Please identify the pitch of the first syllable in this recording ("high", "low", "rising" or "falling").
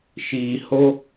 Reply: low